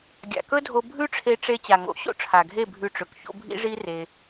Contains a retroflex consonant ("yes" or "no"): yes